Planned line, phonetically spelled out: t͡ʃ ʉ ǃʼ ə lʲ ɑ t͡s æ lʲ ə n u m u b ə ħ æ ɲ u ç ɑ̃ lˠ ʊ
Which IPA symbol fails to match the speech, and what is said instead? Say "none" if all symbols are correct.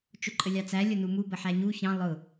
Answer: ʉ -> ʊ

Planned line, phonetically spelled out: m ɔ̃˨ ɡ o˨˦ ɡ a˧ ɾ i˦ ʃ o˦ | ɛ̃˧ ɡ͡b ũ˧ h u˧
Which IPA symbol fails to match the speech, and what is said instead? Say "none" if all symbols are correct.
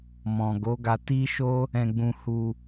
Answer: ɾ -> t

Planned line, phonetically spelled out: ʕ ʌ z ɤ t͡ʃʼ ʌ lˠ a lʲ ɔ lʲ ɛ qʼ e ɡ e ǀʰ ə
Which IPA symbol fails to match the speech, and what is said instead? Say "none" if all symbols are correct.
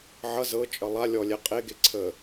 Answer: none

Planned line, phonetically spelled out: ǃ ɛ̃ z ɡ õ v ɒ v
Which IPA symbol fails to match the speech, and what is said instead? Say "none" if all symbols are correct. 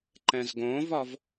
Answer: none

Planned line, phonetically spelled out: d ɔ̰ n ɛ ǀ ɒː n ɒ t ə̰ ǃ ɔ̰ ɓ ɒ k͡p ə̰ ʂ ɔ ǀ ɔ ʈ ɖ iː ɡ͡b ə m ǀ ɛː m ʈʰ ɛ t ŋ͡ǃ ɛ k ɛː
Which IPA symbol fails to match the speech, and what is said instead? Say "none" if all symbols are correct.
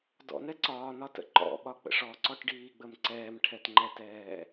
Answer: k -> t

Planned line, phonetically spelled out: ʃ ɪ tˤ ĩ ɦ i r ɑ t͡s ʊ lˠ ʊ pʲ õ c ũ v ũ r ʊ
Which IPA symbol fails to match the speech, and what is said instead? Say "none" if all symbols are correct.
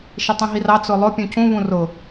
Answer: õ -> ũ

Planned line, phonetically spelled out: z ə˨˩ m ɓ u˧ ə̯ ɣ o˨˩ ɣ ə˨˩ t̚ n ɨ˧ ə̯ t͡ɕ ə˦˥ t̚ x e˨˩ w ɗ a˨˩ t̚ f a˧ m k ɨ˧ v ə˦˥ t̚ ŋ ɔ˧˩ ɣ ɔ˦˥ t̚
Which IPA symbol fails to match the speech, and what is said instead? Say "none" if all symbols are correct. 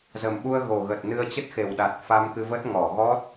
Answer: none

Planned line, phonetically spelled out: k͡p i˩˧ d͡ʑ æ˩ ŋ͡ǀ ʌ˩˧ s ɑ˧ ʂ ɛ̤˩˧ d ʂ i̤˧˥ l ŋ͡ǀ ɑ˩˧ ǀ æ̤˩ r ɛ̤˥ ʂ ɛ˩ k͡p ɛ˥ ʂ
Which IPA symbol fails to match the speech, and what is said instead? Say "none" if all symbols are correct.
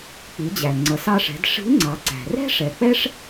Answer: none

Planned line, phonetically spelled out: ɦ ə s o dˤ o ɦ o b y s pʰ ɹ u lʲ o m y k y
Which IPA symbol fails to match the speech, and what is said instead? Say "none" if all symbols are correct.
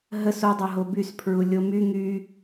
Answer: k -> ŋ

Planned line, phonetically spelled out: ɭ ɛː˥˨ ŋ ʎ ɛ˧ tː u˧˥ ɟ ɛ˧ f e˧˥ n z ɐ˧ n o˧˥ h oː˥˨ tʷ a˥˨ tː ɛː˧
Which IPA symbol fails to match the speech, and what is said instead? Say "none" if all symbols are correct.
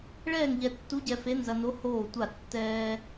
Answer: none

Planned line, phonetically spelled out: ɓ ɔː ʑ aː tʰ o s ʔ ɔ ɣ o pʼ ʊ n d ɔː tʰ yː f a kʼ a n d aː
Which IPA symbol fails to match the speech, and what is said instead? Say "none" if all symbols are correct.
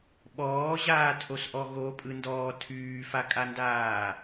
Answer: ʊ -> ɯ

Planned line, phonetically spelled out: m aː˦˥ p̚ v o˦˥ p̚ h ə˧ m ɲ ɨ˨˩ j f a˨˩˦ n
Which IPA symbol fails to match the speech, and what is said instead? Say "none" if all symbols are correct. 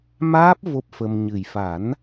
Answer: h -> f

